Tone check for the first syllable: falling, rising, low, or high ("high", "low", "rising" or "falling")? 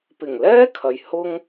low